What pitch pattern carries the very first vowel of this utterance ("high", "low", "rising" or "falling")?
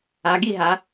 rising